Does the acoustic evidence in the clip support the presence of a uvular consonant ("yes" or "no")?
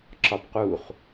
yes